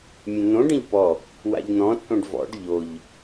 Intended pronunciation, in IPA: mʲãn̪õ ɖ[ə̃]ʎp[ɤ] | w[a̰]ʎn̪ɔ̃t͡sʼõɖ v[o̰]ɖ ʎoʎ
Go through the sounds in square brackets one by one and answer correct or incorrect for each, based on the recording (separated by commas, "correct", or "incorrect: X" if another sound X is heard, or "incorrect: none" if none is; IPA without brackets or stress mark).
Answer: correct, incorrect: ɔ, correct, incorrect: ɔ̰